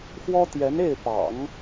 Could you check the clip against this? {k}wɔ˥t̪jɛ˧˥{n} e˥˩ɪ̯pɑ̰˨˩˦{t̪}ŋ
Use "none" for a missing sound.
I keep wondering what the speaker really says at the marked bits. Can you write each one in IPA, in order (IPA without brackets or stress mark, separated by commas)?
x, n, none